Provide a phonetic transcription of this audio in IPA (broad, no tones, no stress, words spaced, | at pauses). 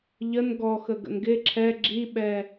ʎən ɡɔxə ɡə̰nɡɪ ǁʰɛ ɡ͡ǁiɓɛ